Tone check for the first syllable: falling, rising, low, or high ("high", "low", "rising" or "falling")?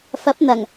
rising